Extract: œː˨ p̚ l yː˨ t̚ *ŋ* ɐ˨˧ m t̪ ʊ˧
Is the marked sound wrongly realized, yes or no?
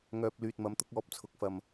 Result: yes